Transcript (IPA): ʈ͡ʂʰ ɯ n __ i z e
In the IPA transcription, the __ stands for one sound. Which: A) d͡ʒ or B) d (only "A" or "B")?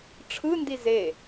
B